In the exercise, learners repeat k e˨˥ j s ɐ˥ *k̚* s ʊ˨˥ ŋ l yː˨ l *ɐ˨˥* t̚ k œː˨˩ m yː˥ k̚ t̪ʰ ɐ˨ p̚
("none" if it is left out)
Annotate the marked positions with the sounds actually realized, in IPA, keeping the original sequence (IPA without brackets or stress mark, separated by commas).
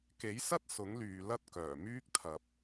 t̚, ɐ˧